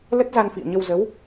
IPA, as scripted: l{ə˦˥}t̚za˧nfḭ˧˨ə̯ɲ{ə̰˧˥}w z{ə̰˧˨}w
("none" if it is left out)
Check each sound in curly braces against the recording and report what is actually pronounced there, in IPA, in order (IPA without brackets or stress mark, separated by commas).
ə˦˥, ə˧, ə˨˦